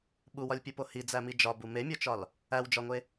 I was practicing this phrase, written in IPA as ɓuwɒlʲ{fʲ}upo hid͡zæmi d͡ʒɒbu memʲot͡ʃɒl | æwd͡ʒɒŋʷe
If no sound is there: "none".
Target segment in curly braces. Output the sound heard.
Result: pʲ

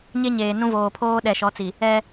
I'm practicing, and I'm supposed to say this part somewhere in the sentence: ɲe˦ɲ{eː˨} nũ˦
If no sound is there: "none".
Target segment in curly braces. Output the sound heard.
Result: eː˨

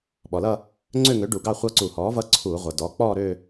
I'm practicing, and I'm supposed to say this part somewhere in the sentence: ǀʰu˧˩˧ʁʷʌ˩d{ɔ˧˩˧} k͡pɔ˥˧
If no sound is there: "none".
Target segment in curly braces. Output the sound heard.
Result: ɔ˩˥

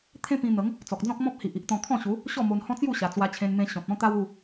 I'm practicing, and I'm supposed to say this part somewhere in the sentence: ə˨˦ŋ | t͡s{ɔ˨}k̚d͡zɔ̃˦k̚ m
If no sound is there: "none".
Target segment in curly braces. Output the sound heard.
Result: ɔ˨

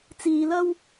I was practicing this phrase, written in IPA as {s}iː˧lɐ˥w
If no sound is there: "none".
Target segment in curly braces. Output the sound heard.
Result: t͡s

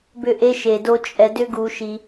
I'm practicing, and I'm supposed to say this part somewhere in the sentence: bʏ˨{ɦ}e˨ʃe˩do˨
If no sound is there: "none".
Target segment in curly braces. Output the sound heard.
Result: ʔ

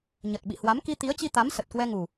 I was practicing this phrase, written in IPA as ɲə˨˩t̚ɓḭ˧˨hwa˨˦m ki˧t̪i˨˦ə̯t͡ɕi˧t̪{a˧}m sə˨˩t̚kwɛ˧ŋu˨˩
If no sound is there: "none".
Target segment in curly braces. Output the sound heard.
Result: a˨˦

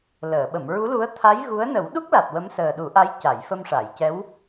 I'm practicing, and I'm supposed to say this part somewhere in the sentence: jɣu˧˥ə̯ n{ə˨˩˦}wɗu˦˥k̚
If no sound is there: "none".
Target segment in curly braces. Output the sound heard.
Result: ə˨˩˦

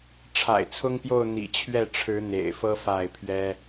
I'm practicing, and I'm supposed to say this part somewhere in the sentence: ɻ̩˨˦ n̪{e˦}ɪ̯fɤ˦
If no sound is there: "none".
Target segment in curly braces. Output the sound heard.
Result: ḛ˨˩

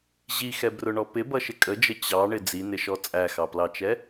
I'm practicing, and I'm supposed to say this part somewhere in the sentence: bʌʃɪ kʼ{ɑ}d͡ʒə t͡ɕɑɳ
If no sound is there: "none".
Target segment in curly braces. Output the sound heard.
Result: ə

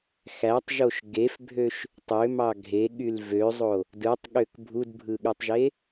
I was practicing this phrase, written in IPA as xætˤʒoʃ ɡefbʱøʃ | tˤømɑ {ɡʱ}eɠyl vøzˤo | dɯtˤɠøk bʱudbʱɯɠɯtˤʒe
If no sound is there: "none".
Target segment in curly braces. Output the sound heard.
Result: ɡʱ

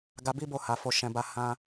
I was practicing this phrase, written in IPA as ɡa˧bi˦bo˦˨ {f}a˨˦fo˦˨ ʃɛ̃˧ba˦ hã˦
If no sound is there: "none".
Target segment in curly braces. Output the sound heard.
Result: h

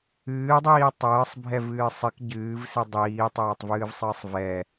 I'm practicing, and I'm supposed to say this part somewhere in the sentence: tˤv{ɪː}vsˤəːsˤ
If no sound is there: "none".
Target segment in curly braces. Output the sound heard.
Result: ɨː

